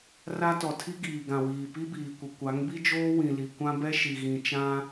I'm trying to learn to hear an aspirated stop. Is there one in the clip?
yes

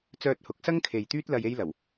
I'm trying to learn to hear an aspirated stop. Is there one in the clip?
yes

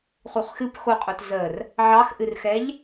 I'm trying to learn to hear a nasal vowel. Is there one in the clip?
no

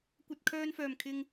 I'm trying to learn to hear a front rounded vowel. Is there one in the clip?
yes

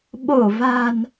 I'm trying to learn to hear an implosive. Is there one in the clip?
yes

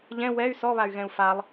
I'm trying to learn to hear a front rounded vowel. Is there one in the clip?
yes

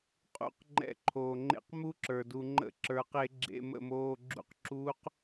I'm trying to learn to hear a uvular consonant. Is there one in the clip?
yes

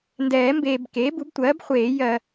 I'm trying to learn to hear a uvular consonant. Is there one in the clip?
yes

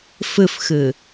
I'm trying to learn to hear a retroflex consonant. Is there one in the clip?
no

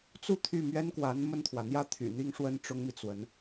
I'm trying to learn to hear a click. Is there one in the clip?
no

